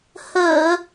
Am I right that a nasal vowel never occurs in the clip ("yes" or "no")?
yes